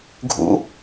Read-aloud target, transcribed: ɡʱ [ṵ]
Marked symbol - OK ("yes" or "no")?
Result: yes